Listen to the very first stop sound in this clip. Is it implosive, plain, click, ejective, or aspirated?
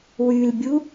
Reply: plain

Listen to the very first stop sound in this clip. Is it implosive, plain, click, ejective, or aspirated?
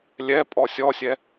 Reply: ejective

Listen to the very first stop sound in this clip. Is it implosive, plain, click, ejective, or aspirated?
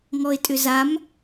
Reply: ejective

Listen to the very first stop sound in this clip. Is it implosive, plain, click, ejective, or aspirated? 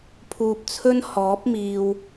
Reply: aspirated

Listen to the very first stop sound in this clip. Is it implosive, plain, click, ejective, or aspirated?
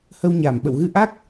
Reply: implosive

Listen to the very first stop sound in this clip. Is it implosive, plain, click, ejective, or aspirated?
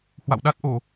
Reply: implosive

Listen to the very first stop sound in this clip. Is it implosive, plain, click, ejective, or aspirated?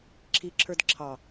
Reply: click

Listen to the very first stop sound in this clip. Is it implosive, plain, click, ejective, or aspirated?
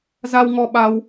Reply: implosive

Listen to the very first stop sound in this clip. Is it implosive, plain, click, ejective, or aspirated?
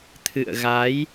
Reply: aspirated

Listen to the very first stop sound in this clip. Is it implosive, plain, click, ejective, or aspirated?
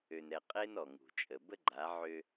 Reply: ejective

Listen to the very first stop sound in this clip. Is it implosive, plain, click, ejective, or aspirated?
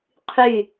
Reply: aspirated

